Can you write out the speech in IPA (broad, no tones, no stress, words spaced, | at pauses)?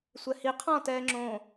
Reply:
sʷɛhi qʰɔ̃ tɛːŋ͡ǁõː